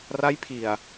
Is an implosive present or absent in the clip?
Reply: absent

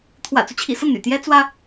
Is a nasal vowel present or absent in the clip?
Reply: absent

